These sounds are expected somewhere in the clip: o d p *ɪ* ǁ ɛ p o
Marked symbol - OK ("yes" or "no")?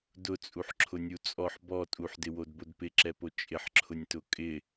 yes